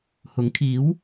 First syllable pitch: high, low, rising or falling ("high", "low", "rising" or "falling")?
rising